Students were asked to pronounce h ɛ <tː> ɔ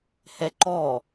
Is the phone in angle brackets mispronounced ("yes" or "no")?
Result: yes